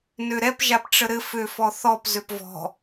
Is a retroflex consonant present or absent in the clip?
present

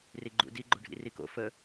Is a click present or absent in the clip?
present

